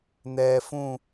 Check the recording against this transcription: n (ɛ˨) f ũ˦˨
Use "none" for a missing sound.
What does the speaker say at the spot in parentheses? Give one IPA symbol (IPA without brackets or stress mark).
ɛː˨